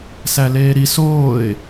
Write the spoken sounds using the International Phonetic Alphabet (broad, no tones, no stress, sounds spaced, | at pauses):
s æ l eː ɾ i s oː ɪ̯